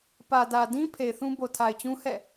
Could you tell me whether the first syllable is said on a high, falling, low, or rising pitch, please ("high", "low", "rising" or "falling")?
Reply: low